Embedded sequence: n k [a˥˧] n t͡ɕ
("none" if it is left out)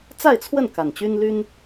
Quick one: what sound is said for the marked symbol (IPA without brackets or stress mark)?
a˨˩